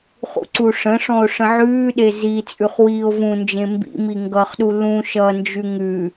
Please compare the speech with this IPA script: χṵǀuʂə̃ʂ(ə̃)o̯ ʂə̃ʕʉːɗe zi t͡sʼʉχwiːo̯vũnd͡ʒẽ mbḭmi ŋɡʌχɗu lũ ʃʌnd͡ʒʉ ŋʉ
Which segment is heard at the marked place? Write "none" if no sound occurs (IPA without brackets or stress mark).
ɔ̃